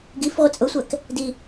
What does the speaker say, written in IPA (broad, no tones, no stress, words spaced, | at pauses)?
ɡif ʁʷɪt͡sʼʊsʷæk | di